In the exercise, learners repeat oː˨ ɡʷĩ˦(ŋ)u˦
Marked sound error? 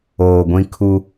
yes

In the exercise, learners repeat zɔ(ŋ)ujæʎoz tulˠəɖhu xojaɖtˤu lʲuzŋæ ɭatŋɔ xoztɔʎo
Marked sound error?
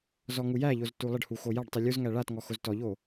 no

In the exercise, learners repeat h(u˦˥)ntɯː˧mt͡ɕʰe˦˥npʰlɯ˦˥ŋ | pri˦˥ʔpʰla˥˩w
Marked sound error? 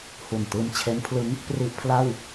yes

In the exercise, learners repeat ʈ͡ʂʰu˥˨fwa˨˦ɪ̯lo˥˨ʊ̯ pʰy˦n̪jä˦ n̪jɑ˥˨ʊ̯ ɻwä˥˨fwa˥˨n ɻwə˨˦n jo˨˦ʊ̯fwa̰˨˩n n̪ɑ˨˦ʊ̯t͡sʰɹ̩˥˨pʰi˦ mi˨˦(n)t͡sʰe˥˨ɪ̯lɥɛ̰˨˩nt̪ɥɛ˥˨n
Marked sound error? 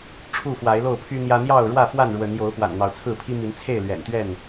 no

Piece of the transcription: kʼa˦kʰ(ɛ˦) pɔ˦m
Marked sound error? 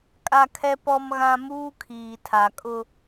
no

